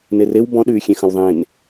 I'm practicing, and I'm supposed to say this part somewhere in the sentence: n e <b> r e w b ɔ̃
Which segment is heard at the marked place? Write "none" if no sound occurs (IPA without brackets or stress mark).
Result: none